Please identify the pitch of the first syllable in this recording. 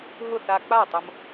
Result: falling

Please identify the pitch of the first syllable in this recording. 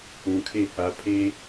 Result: low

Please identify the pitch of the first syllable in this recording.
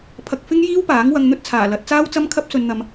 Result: low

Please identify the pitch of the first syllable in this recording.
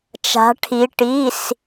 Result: rising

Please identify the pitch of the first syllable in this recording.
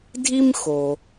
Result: high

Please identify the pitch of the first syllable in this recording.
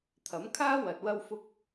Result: rising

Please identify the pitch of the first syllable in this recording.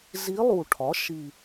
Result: rising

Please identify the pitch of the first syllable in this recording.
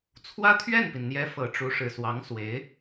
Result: high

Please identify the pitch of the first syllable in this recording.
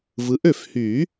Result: rising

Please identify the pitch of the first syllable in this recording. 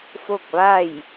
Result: falling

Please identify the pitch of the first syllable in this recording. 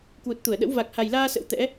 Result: low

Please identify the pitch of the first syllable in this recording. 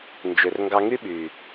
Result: low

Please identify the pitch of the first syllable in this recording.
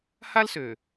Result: high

